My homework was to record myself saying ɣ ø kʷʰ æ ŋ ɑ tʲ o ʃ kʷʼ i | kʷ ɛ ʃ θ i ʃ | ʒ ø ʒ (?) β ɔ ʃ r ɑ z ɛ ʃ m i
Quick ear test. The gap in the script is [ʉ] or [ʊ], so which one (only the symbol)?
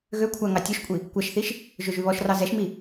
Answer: ʉ